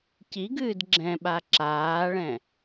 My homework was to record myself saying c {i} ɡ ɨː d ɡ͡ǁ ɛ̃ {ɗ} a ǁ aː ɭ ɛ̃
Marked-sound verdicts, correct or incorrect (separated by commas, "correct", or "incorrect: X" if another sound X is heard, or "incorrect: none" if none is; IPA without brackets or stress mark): correct, incorrect: ɓ